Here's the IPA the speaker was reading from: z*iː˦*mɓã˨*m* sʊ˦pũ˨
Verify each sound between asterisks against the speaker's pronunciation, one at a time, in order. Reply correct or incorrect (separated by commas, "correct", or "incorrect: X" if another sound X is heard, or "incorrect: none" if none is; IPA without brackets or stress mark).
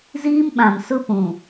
correct, correct